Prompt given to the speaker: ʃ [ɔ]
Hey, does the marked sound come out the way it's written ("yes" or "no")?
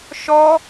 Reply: yes